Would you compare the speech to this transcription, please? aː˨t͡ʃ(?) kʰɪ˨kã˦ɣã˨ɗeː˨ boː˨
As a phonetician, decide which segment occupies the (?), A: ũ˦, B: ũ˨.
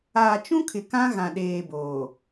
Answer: A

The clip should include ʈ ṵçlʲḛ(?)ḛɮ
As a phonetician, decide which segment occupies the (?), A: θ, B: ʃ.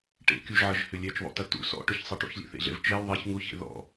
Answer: A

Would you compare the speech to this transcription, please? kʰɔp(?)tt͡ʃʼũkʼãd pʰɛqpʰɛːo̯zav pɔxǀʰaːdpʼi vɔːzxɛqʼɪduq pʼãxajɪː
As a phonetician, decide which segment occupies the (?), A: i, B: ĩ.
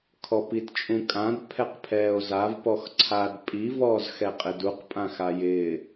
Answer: A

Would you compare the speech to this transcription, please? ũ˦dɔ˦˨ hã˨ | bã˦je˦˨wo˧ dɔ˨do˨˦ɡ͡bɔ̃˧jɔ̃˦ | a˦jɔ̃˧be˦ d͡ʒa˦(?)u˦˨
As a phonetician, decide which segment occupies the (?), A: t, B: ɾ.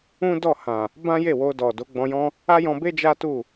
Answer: A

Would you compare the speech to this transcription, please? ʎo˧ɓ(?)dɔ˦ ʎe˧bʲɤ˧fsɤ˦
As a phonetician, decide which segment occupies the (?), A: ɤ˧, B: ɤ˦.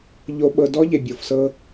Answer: A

